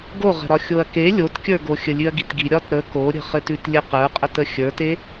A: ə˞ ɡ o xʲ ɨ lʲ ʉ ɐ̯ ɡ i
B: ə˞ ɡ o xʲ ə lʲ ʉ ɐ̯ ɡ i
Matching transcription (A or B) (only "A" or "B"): B